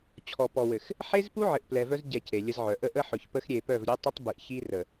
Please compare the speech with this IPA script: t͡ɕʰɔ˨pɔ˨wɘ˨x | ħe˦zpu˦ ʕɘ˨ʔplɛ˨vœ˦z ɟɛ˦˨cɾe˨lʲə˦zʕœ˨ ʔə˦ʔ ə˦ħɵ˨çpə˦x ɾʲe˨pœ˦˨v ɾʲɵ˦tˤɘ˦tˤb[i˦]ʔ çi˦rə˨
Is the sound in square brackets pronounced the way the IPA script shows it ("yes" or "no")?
no